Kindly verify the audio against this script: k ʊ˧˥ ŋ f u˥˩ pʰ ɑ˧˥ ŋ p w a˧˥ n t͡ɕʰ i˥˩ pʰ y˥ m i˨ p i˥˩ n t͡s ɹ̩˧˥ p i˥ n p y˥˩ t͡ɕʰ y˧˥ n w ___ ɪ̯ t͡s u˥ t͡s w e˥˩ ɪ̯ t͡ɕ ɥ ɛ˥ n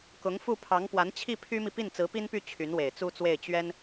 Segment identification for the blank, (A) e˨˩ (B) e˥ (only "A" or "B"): A